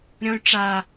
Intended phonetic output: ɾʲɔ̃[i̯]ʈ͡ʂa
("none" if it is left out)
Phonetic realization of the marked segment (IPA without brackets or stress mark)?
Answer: y̯